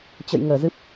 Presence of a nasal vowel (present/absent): absent